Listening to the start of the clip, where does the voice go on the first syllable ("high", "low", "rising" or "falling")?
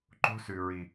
high